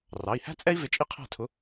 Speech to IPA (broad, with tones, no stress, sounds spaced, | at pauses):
r ɑ˩˧˩ i̯ h æ̤˥ t͡sʼ ɛ˥ i̯ v ɪ˧˥ t͡ʃʼ i˥ qʰ æ̤˥˩ tʰ ʊ˧˥